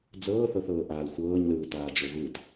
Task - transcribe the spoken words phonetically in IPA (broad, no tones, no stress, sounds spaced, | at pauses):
d͡z ɤː θ ɤ θ ɤː ʔ aː l xʷ ɤː ɲ l ɯː t aː d͡ʒ o v ɯ t